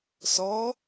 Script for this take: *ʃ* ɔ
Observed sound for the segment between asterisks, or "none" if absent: s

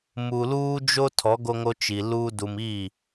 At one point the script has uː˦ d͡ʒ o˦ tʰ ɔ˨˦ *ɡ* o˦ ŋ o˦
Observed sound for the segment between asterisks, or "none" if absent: ɡ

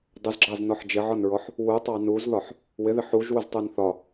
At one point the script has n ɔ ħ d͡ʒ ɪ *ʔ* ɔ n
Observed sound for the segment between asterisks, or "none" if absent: ʕ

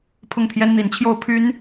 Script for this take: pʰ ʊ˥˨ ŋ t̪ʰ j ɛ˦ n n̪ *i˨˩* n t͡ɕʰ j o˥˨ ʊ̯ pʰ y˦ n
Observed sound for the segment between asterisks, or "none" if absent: i˨˦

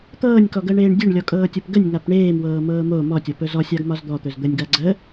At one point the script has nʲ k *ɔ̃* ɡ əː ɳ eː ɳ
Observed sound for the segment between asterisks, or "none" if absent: ɔ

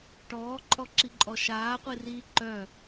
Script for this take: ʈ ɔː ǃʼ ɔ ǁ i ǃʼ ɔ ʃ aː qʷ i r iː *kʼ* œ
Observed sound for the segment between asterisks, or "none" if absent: ǃ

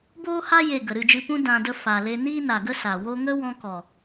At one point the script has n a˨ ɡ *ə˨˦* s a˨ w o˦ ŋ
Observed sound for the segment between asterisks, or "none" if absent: ə˦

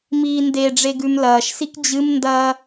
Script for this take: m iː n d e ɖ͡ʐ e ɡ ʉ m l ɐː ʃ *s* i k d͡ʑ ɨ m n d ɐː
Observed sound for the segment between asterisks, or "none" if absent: s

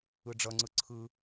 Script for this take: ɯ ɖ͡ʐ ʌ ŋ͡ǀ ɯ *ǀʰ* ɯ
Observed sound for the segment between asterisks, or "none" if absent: ǀʰ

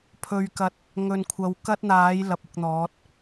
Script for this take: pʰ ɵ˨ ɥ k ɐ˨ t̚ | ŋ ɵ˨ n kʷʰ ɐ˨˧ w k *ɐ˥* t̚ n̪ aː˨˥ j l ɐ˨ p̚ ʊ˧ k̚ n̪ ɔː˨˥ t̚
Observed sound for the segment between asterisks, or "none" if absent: ɐ˥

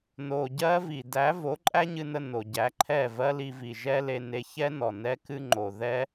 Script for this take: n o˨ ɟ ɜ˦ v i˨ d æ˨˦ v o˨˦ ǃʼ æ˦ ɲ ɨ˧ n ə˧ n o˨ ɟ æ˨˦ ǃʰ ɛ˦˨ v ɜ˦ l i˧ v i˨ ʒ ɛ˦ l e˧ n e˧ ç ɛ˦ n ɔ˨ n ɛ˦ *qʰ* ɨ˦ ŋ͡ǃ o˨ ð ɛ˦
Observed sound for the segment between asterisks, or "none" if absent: k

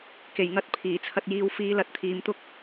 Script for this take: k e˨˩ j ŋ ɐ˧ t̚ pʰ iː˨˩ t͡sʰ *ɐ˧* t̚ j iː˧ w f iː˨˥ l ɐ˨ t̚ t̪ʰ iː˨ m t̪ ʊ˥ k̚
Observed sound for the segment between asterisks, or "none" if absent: ɐ˧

